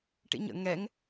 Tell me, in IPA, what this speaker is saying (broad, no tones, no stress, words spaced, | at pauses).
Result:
ʈḭɲə̰ ŋɛŋ